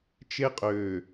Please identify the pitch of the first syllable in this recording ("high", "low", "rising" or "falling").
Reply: high